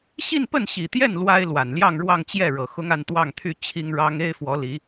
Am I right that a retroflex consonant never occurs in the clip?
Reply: no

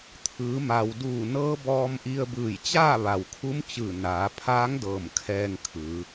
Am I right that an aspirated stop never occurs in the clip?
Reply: no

